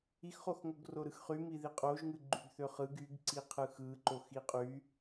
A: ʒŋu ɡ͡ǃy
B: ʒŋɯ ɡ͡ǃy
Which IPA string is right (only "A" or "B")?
B